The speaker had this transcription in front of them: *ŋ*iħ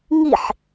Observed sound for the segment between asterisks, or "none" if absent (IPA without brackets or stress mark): ŋ